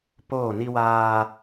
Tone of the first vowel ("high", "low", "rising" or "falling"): falling